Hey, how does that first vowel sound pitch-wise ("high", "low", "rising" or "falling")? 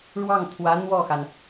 falling